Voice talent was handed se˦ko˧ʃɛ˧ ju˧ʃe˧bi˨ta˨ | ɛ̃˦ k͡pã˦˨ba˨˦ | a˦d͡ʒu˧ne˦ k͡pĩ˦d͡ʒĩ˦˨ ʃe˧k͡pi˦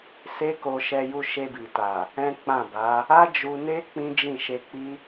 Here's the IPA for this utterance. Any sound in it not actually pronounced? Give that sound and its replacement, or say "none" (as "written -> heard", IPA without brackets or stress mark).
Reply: none